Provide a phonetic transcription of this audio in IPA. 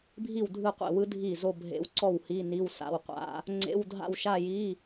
bʱ i˥˩ w dʱ ɯ˥˩ qʷ ḛ˥˩ w ɯ˦˥ dʱ i˥˩ z o˥˧ bʱ ḛ˦˥ w ǀ ɔ˥˩ w h i˧˥˧ n i˧˥˧ w s a̰˧˥˧ w qʷ a̰˦˥ | ŋ͡ǀ ḛ˧˥˧ w dʱ a̰˥˧ w ʃ a˥˧ j i˧˥˧

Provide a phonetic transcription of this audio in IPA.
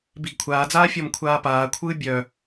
b i ɡ kʷʰ aː d͡z aː fʲ ɔ m kʷʰ aː p aː kʷʰ ɯː bʲ œ

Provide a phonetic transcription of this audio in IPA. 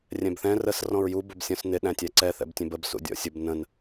rʲ ɛ̃ b θ ɛ̃ r ə s r ɔ̃ ɹ j u b ʊ b sʲ ɔ̃ s n ɪ ɗ æ̃ tʲ æ ǀ ɛ θ ɛ̰ b tʲ ɛ̃ b ə b s ṵ dʲ ɔ̰ sʲ ʊ b n ə̃ n

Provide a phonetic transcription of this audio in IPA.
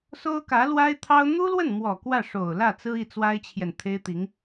s o˥ ʊ̯ k ä˧˥ l w a˥ ɪ̯ t̪ʰ ɑ˥ ʊ̯ n̪ u˥ l w ə˥˩ n m w ɔ˨˩ k w ä˥˩ ʂ o˨˩ ʊ̯ l ä˥˩ t͡s ɹ̩˥ i˥˩ t͡s w a˥ ɪ̯ t͡ɕʰ j ɛ˨ n t̪ʰ e˥ ɪ̯ t̪ i˧˥ ŋ

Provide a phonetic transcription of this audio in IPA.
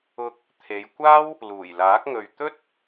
ʊ˧ k̚ | t̪ʰ e˨˧ j kʷ aː˥ w | l uː˨˩ j l aː˨˥ k̚ ŋ ɵ˨ ɥ t̪ ɵ˥ t̚

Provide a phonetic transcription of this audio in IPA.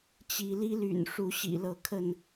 t͡ɕ i˨˦ l i˦ l y̰˨˩ n ʂ u˨˦ ɕ ḭ˨˩ l ɤ˨˦ kʰ ə˥˨ n

